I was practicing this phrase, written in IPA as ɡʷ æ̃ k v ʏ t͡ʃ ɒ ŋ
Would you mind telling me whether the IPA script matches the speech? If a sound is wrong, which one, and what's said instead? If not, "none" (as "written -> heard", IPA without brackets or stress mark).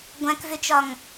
none